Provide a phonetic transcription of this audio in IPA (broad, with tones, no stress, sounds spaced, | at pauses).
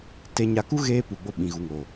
t e˧ ɲ a˧ k u˦ ɣ eː˧ p u˨ ɡ͡b o˧ ɓ ĩ˨ ɣ u˨ ŋ o˨